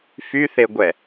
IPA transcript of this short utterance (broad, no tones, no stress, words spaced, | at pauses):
fyθeɡʷɛ